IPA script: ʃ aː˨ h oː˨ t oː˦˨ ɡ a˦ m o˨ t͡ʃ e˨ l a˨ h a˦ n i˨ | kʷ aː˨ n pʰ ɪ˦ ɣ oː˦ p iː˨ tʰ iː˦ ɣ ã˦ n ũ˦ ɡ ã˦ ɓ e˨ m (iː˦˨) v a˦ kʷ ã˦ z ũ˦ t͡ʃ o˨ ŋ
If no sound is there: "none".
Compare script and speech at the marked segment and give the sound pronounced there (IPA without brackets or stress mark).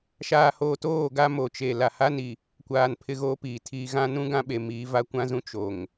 iː˨˦